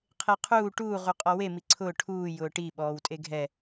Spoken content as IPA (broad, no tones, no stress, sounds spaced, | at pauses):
qʰ e qʰ uː ʈ uː ʁ u qʼ ɔ w e m i ǀʰ ʊː ʈʰ uː j ʊː ʈ i ɓ ɔː w tʼ e ɡʱ ɛ